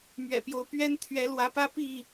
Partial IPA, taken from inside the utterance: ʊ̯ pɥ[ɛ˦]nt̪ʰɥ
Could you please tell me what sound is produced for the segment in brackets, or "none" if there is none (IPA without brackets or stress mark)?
ɛ˦